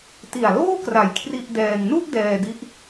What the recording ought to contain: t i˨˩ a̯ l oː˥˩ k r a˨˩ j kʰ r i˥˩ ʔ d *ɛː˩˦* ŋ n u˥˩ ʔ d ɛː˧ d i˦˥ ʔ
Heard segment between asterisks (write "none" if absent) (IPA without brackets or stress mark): ɛː˧